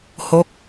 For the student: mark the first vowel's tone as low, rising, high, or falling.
falling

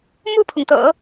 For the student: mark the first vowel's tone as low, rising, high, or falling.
falling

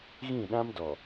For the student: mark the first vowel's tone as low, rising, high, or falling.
falling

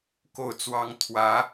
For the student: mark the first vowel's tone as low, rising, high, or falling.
falling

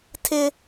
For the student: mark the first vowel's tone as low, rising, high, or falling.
high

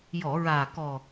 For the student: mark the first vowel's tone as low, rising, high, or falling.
low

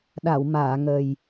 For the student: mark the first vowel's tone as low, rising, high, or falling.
low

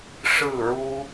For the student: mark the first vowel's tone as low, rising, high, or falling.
falling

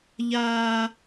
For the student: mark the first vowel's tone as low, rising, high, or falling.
high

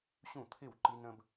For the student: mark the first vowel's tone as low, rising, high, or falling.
falling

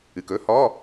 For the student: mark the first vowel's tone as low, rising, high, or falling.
low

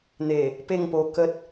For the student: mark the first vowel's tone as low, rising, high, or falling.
low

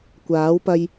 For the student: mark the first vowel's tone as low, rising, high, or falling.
rising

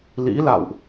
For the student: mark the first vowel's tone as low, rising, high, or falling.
rising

